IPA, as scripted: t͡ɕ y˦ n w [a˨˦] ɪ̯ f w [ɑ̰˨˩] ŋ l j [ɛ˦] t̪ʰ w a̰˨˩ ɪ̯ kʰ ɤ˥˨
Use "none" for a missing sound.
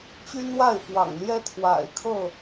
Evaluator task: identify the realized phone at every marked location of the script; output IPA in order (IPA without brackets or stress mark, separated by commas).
a˥˨, ɑ̰˨˩, ɛ˦